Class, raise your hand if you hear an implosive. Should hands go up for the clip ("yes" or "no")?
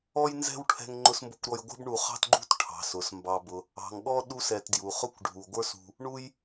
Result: yes